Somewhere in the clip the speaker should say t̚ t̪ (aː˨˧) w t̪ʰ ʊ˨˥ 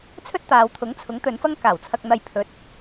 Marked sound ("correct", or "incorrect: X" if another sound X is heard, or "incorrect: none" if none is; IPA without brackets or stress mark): correct